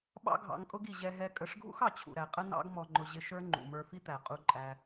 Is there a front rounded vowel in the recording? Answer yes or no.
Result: no